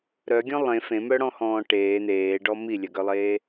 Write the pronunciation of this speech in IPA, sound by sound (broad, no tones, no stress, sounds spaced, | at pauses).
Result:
ɾ œ ɡʲ ɔ̃ lˠ ẽ f ẽ m œ ɽ ɔ̃ h ɔ̃ː ʈ eː n̪ eː ɖ ɔ m i lʲ œ ɡ œ lˠ eː